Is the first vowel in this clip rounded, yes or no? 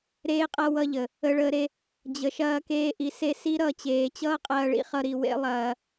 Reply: no